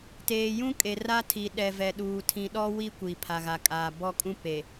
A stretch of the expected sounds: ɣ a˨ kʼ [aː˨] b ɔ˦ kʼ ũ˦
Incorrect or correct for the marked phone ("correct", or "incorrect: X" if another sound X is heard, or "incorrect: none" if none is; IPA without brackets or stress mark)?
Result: correct